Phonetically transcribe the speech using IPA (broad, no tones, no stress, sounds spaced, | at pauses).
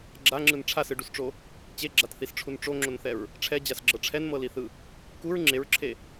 ɡ͡ǁ a ŋ͡ǁ ɯ n ʈ͡ʂʰ a s ɯ ɖ u s ʈ͡ʂ o | t͡ɕ e ɡ͡ǁ a t θ i s ʈ͡ʂʰ u n ʈ͡ʂ o ŋ͡ǁ o n θ ɛ ɹ | ʈ͡ʂʰ ɛ d͡ʑ a s ɡ͡ǁ ɤ ʈ͡ʂʰ ɛ n m ɤ l i θ ɯ | k u ɹ ŋ͡ǁ e ɹ ǁʰ e